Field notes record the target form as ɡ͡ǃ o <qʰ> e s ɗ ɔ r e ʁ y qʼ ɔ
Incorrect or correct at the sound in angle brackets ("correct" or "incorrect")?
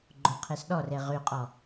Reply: correct